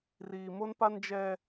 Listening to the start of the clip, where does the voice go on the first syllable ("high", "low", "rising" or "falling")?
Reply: low